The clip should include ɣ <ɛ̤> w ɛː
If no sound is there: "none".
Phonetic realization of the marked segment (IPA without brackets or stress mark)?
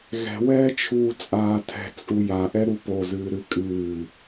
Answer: ɛ̤